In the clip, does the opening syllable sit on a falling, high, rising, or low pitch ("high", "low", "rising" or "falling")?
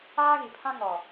high